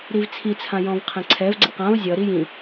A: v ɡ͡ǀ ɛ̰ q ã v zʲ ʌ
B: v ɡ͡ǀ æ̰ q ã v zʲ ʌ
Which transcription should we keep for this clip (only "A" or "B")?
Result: A